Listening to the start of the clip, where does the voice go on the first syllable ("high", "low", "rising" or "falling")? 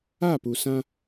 falling